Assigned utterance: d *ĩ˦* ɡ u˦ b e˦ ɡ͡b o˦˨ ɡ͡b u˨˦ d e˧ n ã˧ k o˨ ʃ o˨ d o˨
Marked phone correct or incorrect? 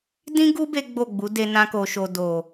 correct